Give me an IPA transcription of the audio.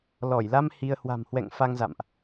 l ɔ˧˩ j l a˧ m h i˧ ə̯ h w a̤˨˩ m h w ɛ̰˧˨ ŋ f a˧ ŋ z a̰˧˨ m ʔ

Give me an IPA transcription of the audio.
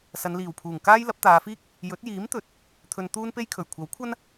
s ɐ˨˧ n l iː˨˩ w pʰ uː˨˩ ŋ k aː˥ j l ɐ˨˥ p̚ t̪ aː˨˧ f iː˥ k̚ | j ɵ˨˥ t̚ j iː˨˥ m t̪ ɵ˨˥ t̚ | t̪ʰ ɵ˧ n t̪ uː˥ n p e˥ j kʰ ɵ˨˩ ɥ kʷʰ ɐ˨˥ w kʷʰ ɐ˥ n

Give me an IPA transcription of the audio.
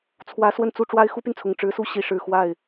t͡sʰ w ä˧˥ s w ə˥˧ n t͡s u˥˩ ʈ͡ʂ w a˥ ɪ̯ x u˥ p y˨ n t͡sʰ ʊ˨˩ ŋ ʈ͡ʂ ɻ̩˧˥ s u˥˩ ɕ i˧˥ ʂ ɻ̩˨˩ x w a˥˩ ɪ̯

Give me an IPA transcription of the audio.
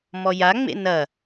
m ɔ j a ŋ͡m ḛ n ɐ

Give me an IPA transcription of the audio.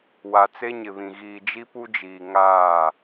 w a˨ t͡s e˦ ɲ ɪ˨ β ĩ˨ ɣ iː˨ d͡ʒ i˦ p u˦ d͡ʒ iː˨ ŋ aː˦˨

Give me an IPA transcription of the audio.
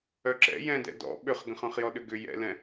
œ ǁ ɛ̰ j ɛ̃ d ɛ̰ d ɔ̰ ɓ ʏ χ ɡ ə̃ χ œ̃ χ j ɔ ɗ ʏ ɡ ʏ j ɛ̰ l ɛ̃

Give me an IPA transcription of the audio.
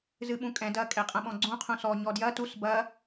z ɨ ɓ ũ kʼ ɛ̃ d ɐ kʼ ɛ qʼ ɐ̃ ɓ ɔ̃ ɡ͡ǀ ũ qʰ ũ s ɔ ɲ ɔ d j ɐ t u s b ɐ

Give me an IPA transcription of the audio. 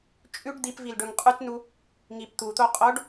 t͡ʃʼ ʉ ɖ d̪ i p v i l ɖ ɵ ŋ qʼ ʉ t n u | ŋ i p t̪ u t̪ o qʼ o ɖ

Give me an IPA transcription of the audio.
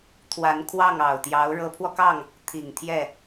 t̪ʰ w a˧˥ n kʰ w ɑ˥˩ ŋ ɑ˨˩ ʊ̯ t̪ j ɑ˧˥ ʊ̯ ɻ ɤ˧˥ pʰ w ɔ˧ k ɑ˥˩ ŋ | t̪ʰ i˨˩ ŋ t̪ʰ j ɛ˥˩

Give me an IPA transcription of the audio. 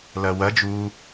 l ɐ w ɐ d͡ʒ u

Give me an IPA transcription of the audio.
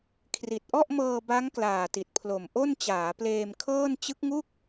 kʰ r i˨˩ t̚ ʔ ɔ˥˩ ʔ m ɤː˧ b a˦˥ ŋ k l aː˨˩ t i˨˩ t̚ pʰ l o˨˩ m ʔ o˥˩ n t͡ɕ aː˩˦ p l eː˧ m kʰ ɤː˥˩ n t͡ɕ ɯ˦˥ k̚ ŋ u˥˩ k̚

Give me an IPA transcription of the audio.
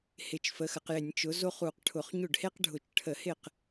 h ɪ˧˩˧ t͡ʃ f ə˩˥ x ə˩˧ q j ɪ˧˩˧ nʲ t͡ʃ ʊ˩˥ z o˥ χ u˧˩˧ q ʈʰ ʊ˧˩˧ χ ɲ ʊ˥˩ ɖ h e˥ q ɖʱ ʊ˧˩˧ t͡ʃ ʈʰ ə˧˩˧ h ɪ˥˩ q

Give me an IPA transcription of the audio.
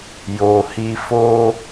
j o˨ h i˧ f o˦

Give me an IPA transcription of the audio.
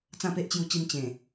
t͡s ã˥˧ p e˦ ʔ t͡ɕ j u˧ t͡ɕ i˧ m t͡ɕ ẽ˨˩

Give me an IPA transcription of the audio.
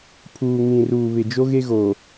pʰ uː˨ ŋ ĩ˨ r uː˨ β ɪ˨ d͡ʒ o˦ ɣ e˦ ɣ o˨

